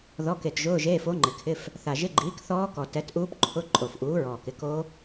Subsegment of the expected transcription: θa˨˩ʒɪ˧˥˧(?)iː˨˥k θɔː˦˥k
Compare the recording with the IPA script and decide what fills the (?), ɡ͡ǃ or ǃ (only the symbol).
ɡ͡ǃ